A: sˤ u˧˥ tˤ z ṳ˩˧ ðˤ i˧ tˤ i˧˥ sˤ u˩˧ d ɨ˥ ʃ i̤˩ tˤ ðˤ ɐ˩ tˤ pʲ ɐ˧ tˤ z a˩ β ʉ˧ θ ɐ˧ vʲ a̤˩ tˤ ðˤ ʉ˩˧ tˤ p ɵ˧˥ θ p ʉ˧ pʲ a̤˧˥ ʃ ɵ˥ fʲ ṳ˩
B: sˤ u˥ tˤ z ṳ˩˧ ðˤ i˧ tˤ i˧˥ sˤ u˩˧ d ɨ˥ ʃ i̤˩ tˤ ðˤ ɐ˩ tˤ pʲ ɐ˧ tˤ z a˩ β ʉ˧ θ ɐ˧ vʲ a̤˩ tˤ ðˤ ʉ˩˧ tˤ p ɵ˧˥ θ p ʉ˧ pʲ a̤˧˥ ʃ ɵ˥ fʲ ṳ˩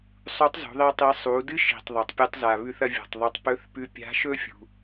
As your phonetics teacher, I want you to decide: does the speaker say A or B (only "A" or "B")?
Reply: A